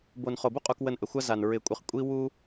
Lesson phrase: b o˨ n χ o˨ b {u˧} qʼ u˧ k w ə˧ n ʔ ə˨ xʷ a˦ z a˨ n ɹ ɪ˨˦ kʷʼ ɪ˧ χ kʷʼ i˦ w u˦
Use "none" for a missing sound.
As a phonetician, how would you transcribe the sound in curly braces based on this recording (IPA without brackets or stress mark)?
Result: u˦